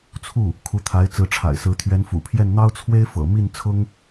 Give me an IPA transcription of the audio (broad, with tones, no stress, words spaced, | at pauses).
t͡sʰu˥˩ | kʰu˧˥t̪ʰa˧˥ɪ̯ t͡sɹ̩˧˥ʈ͡ʂʰa̰˨˩ɪ̯sɹ̩˧˥ t̪ʰɥɛ˧˥nfṵ˨˩pʰjɛ˥˩n n̪ɑ˥ʊ̯t͡sʰwe˥ɪ̯ fɤ̰˨˩ mi˥˩nt͡sʰʊ˥ŋ